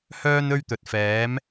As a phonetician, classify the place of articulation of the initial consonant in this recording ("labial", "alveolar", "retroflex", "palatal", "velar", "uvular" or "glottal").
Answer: glottal